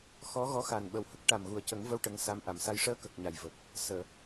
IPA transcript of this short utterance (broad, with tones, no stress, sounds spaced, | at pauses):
x ɔ˧˥ ɣ ɔ˧˥ x a˨˩ n ɓ ə˨˩ w h ə˦˥ k̚ ʈ a˨˩ m ɣ u˨˩ ə̯ c ə˨˩˦ ŋ v ə˧ w ʈ ə˧˥ ŋ s a˧˥ m ʔ a˨˩˨ m s a˧ j ʂ əː˧ k ə˨˩ k̚ ɲ a˨˩ j v ə˨˩ k̚ | s əː˨˩˨